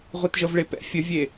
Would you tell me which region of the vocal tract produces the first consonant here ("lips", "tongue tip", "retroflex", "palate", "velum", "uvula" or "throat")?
uvula